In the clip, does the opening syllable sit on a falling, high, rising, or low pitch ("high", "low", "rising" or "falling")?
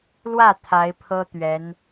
falling